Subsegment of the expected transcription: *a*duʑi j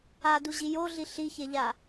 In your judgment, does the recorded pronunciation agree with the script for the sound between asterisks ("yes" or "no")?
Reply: yes